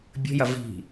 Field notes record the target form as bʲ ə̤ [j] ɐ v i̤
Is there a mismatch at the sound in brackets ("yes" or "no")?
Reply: no